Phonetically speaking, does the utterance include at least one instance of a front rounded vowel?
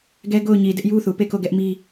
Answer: no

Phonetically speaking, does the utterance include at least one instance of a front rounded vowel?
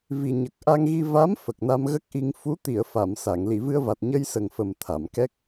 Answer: no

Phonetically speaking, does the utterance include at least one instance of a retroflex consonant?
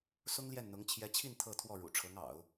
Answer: yes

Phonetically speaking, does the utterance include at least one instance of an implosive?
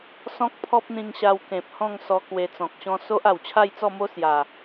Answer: no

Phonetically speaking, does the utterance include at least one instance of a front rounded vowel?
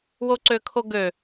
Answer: yes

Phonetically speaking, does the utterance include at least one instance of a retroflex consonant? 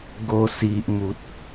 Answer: no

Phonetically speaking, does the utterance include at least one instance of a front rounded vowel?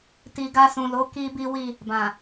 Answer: no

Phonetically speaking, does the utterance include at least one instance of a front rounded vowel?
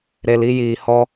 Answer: no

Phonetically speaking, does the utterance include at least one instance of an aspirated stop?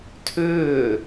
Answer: yes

